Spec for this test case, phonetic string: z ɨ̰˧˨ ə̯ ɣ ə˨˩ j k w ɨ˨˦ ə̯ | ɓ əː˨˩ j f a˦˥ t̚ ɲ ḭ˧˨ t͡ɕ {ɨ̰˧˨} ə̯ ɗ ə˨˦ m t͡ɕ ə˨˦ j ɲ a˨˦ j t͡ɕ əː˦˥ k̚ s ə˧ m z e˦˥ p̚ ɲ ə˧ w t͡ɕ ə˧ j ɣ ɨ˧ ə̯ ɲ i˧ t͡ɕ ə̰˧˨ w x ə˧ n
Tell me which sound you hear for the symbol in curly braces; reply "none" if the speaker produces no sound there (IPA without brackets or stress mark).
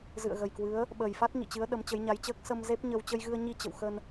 ɨ˨˦